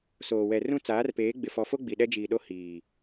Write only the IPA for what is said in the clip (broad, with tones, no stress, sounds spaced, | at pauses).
s oː˨ w ɛ˨ r ũ˦ t͡s aː˨˦ r p eː˨˦ ɡ͡b ɪ˨ f ɔ˨ f o˦ ɡ͡b i˨ ɗ ɛ˦ d͡ʒ iː˨ ɗ o˦ h iː˨